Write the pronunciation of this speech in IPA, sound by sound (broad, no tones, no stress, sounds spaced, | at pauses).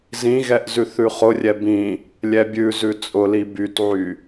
z ĩ ɣ ɛ ʔ z ʉ θ ʉ χ ʊ rʲ ɛ b ĩ | lʲ ɛ bʲ ʉ z ʉ t͡sʼ ʊ l i b y t ʕ y